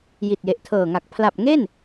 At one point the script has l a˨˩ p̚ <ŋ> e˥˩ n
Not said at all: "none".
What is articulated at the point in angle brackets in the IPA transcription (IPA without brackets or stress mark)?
ŋ